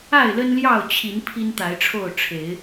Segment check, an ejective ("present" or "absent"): absent